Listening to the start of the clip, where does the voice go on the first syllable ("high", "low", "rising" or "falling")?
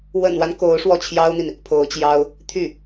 low